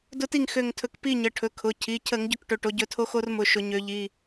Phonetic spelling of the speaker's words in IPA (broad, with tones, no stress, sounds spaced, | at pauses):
d ʊ˦ t i˥˨ ŋ x ø˧˩ ŋ tʰ ɵ˧˩ k p i˥˨ ɲ ə˩˧˩ ʈʰ ɵ˩˧˩ kʰ ʊ˩˧˩ cʰ i˩˧˩ cʰ ə˧˩˧ ŋ ɟ ɵ˦ k ʈ ɵ˩˧˩ ʈ o˨˦ ɟ ɵ˨˦ tʰ o˦ x o˦ r m ʊ˩˧˩ ʃ ʊ˧˩˧ ɲ ø˨˦ ʎ i˩˧˩